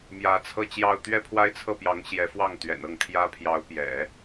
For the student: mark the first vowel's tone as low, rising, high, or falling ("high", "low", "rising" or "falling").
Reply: rising